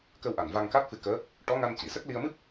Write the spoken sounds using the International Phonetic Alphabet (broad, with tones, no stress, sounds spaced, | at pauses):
k ə˧ w ʔ a˨˩ n v a˧ ŋ k a˦˥ t̚ f ɨ˧ k əː˧˥ | ʈ ɔ˧˥ ŋ a˧ n c i˨˩˨ s ə˦˥ k̚ l i˧ ə̯ m ɨ˦˥ p̚